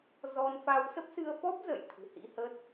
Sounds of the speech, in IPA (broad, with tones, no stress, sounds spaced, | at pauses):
z ɔ˧ n f a˧ w s ə˦˥ p̚ s ɨ˧ ə̯ f ɔ˦˥ p̚ z ə̰˧˨ j t̪ʰ ɨ̤˨˩ h ḭ˧˥ h ə˦˥ t̚